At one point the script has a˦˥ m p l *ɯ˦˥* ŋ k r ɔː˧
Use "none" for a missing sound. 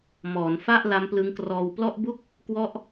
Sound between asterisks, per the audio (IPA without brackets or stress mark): ɯ˦˥